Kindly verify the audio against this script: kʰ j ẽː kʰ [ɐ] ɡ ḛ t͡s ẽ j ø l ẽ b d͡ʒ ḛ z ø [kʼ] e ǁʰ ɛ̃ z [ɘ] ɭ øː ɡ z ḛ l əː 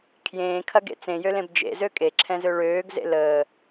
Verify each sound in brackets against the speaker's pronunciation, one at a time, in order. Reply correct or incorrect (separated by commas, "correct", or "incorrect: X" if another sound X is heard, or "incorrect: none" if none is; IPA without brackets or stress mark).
correct, correct, incorrect: ø